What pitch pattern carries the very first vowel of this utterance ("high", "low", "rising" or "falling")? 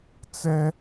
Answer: high